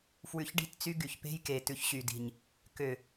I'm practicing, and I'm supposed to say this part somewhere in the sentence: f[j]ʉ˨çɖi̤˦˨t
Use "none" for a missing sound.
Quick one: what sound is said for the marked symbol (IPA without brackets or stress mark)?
w